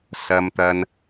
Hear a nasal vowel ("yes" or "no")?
no